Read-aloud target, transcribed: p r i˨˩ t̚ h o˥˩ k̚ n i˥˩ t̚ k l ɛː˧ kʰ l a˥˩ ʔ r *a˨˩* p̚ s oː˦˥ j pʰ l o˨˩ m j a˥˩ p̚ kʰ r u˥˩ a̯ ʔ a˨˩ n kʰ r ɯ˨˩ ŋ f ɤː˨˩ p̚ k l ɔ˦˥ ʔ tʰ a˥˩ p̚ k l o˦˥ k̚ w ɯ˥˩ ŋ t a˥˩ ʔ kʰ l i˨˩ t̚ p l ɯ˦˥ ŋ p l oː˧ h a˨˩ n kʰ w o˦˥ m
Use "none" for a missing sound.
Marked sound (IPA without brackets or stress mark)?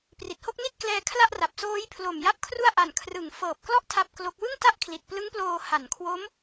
a˨˩